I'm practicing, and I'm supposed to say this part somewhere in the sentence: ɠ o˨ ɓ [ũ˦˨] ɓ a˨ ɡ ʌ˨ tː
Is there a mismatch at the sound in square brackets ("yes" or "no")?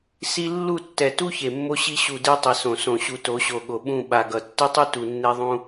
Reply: no